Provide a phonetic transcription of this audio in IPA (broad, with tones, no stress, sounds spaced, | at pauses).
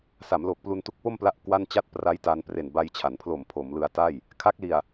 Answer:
s a˩˦ m l o˨˩ k̚ p l u˧ n t u˦˥ k̚ p o˥˩ m p l a˦˥ ʔ k w a˥˩ n t͡ɕ a˥˩ t̚ p r a˦˥ j t a˧ n p r e˨˩ n b a˧ j t͡ɕʰ a˩˦ n pʰ l o˨˩ m pʰ o˩˦ m l ɯ˧ a̯ t a˥˩ j | kʰ a˦˥ k̚ l i˨˩ a̯